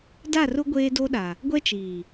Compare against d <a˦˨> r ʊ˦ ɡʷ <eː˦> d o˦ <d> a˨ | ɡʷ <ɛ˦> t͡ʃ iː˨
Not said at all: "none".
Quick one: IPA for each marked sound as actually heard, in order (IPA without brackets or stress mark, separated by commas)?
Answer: a˦˨, eː˦, ɗ, ɛ˦